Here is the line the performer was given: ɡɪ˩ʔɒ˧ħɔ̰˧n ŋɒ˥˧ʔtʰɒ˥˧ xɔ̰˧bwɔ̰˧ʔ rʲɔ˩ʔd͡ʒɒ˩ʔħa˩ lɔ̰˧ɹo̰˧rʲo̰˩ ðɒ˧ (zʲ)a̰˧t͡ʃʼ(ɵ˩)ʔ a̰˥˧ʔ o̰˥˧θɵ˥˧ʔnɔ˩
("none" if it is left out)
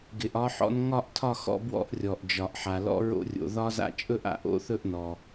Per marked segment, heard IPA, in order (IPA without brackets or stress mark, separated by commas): z, ɵ˥˧